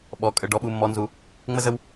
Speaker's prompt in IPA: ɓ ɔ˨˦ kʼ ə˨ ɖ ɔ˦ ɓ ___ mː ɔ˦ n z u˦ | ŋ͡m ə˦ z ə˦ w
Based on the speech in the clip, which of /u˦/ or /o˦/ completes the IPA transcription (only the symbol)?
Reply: u˦